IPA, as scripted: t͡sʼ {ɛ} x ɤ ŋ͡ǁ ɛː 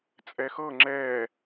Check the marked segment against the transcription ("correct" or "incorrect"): correct